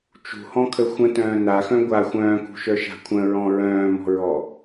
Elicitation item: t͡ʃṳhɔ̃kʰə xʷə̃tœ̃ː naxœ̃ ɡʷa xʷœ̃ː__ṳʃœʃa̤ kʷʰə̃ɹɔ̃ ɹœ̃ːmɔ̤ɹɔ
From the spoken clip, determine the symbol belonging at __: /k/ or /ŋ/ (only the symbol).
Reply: k